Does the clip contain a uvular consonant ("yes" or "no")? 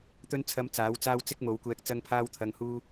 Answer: no